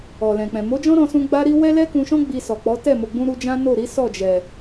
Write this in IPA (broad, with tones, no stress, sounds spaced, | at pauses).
ɔ˨ l ɛ̃˨ k͡p ɛ̃˨ m o˨˦ d͡ʒ ɔ̃˦ ɾ ɔ̃˧ s ũ˧ ɡ͡b a˦ ɾ i˦ w ɛ˦ l ɛ˦ k ũ˧ ʃ ɔ̃˦ ɡ͡b i˧ s ɔ˨ k͡p ɔ˨˦ t ɛ˦˨ m o˨ ɡ͡b ũ˧ ɾ u˧ d͡ʒ ã˦ n o˦˨ ɾ i˨˦ s ɔ˦˨ d͡ʒ ɛ˨